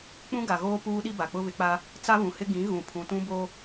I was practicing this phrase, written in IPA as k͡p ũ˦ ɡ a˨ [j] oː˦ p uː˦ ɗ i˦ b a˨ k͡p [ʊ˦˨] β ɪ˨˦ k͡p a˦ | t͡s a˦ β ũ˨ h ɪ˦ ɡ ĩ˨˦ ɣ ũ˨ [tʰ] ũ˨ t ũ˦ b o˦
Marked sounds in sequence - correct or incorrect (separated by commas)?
incorrect, incorrect, incorrect